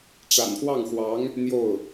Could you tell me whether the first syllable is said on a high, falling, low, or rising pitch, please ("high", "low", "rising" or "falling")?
low